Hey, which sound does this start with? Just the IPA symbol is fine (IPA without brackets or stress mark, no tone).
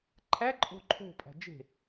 ǃʰ